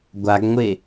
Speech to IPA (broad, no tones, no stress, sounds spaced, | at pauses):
ɡʷ a ɡ ŋʷ e